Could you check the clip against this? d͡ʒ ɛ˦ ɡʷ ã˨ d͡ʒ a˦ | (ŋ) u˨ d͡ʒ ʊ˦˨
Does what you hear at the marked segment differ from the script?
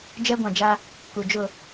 yes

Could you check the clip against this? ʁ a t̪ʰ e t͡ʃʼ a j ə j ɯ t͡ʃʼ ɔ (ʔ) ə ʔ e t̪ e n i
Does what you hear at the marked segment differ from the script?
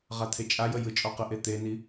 yes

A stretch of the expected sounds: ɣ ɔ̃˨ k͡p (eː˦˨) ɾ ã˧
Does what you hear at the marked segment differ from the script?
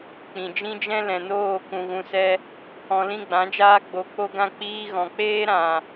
yes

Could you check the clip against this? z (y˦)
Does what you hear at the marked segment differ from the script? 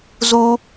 yes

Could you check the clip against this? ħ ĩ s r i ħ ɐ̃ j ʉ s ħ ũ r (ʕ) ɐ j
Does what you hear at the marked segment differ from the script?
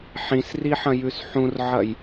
no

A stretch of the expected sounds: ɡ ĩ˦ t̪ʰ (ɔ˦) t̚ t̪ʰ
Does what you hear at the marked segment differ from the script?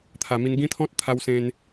yes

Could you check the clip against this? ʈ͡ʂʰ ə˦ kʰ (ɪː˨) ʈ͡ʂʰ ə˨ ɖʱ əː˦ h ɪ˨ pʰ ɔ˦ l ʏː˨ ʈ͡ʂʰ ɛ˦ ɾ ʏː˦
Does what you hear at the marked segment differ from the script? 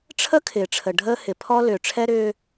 no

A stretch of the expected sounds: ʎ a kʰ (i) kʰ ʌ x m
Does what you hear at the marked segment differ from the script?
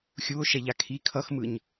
no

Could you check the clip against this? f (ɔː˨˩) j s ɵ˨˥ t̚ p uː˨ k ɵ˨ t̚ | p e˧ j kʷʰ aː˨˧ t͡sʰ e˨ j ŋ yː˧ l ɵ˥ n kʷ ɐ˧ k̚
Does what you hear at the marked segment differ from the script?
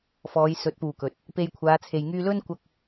yes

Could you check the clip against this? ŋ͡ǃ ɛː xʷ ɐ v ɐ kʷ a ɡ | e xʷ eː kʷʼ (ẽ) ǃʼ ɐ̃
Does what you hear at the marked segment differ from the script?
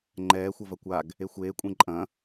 no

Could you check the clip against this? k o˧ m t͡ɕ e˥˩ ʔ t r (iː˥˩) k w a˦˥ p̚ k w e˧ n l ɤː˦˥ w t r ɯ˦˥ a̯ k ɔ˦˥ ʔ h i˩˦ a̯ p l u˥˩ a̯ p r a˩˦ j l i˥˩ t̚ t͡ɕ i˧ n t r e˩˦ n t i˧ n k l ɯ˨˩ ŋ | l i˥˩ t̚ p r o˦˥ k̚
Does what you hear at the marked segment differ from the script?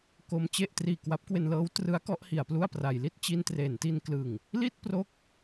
yes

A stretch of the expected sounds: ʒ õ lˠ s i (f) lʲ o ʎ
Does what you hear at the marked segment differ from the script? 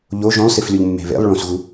no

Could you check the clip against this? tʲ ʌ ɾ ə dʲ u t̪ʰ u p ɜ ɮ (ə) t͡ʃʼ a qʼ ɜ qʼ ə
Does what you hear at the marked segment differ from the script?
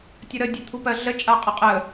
no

